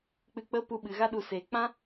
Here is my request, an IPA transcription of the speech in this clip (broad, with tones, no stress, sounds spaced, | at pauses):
k͡p ɨ˧ k͡p ə˦ p u˧ ɓ ɨ˨ ɣ a˧ ɗ u˨ s e˨ k͡p ã˦